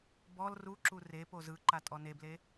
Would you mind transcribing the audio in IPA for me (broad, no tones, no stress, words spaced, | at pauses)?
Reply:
bɔl ruǁu re pozɯǃa tʼɔneble